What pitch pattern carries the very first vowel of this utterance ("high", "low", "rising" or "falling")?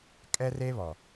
high